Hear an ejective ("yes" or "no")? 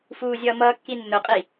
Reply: yes